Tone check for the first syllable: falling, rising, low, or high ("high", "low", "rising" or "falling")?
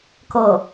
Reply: falling